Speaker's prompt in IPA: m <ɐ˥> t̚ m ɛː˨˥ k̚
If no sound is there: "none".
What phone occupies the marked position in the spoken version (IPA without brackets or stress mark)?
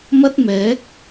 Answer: ɐ˥